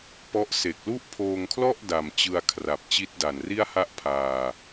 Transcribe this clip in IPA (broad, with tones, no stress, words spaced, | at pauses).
pɔ˦˥ʔ se˨˩k̚lu˥˩ʔ pʰoː˧ŋkʰlɔ˥˩ʔ da˨˩mt͡ɕɯ˧a̯ kʰra˨˩p̚t͡ɕi˦˥t̚da˨˩nri˥˩a̯ ha˥˩ʔpʰaː˧